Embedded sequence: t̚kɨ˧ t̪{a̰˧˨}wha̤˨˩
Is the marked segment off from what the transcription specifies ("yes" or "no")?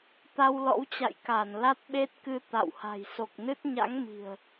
no